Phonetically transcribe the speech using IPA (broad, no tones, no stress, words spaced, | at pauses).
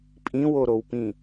pʼĩwoɾowpĩ